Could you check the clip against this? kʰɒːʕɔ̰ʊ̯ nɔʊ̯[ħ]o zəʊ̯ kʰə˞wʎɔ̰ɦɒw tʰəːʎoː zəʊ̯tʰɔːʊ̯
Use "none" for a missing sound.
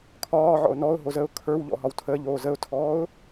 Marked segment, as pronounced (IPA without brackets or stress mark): ɦ